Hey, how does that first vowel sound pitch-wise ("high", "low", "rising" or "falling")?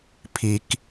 low